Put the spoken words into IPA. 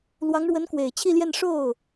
l w ɑ˧˥ ŋ ɻ w ə˧˥ n k w e˨˩ ɪ̯ t͡ɕʰ i˥˧ l j ɛ˥˧ n ʂ o˥˩ ʊ̯

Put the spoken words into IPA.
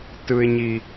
t ɯ˨ ɪ̯ ɲ i˨

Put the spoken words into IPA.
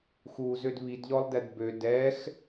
x u z ø d β i d ʎ ɔ lˠ d ɛ d b ø d ɛ x

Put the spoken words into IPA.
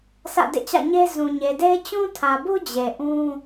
sʰ ä̰˦˨ d ḛ˦˨ t͡ɕ ä̰˦˨ ɲ e˦ z ũ˨ ɲ e˨ d e˦ ɪ̯ t͡ɕ ũ˦ tʰ ä˨ b u˦ d͡ʑ e˨ ʔ ũ˦

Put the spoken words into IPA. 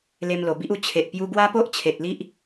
l e˦ m l o˧ b i˦ ʔ u˥˧ t͡ɕʰ e˨ ʔ p j u˧ ɡ w a˦ p o˦ ʔ t͡ɕʰ e˨ t̚ l i˦ ʔ

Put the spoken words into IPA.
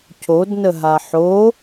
c o d n ə ɦ a ħ o

